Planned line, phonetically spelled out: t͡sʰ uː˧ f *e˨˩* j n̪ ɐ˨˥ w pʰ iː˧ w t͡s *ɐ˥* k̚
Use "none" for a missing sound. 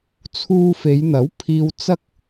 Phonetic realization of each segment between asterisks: e˨˧, ɐ˥

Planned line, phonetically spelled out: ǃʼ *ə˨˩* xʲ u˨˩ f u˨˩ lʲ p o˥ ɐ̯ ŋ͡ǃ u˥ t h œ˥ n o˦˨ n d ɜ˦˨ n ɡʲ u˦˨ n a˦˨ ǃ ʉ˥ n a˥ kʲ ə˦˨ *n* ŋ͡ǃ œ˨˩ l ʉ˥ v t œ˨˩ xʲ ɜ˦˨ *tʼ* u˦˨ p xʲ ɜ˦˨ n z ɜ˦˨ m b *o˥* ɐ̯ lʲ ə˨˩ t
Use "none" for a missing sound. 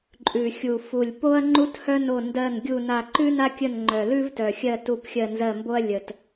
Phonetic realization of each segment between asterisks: ʉ˨˩, n, t, o˥

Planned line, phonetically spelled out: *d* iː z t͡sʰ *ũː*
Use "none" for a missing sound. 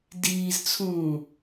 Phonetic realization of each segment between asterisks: d, ũː

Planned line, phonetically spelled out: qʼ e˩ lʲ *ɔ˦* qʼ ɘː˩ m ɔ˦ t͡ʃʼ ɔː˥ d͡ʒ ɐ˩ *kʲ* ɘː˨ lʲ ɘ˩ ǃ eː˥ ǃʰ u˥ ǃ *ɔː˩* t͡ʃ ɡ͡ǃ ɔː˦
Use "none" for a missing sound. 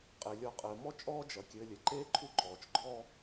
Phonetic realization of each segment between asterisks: ɔ˨, kʲ, ɔː˩

